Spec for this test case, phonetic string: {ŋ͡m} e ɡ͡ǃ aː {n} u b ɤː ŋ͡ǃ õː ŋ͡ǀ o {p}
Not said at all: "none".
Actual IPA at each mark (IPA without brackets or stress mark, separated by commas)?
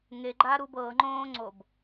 ŋ, ɾ, b